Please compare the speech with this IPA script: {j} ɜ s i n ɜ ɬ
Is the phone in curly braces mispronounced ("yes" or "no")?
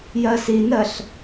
no